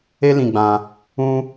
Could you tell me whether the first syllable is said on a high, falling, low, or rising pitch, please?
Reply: high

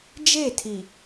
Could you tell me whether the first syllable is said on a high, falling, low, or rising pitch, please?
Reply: falling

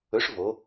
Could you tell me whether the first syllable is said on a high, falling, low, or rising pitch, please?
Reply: rising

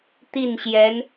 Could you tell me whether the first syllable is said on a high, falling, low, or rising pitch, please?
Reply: falling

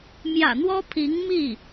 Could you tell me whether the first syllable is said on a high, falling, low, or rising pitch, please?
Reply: low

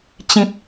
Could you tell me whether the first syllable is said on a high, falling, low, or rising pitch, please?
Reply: low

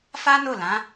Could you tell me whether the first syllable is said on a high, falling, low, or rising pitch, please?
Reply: high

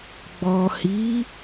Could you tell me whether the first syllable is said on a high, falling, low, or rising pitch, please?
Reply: low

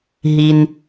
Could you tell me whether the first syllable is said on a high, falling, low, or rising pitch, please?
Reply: low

